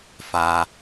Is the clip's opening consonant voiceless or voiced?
voiceless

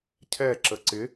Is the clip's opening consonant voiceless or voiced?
voiceless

